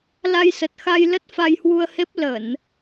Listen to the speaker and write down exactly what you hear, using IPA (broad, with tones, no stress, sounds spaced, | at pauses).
l a˧ j s ə˨˩ t̚ x a˧ j l ə˦˥ t̚ f a˧ j h w u˧ ə̯ h e˦˥ p̚ l ə˧˩˨ n